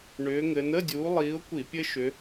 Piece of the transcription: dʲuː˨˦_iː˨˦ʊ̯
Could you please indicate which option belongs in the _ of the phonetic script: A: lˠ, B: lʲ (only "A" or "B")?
A